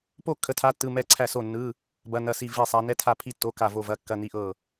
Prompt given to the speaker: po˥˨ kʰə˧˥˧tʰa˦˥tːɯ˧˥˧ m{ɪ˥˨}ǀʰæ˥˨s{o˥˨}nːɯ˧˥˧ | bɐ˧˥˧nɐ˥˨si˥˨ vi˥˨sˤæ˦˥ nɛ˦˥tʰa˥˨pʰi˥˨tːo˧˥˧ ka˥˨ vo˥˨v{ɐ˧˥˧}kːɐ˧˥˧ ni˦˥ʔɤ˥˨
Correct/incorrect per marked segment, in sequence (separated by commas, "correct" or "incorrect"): incorrect, correct, correct